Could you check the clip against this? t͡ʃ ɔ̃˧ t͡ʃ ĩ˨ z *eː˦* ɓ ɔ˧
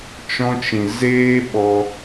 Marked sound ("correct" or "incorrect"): correct